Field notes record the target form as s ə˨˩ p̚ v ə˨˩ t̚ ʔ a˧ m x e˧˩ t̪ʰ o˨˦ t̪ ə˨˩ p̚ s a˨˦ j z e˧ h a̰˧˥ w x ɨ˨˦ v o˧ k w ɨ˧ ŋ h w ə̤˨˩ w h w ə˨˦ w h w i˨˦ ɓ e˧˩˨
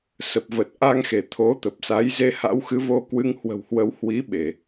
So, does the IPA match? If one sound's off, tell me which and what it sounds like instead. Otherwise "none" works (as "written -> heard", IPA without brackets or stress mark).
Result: m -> ŋ